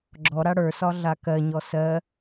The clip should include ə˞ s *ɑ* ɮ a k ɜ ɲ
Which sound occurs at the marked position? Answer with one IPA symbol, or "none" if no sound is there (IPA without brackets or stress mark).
ɒ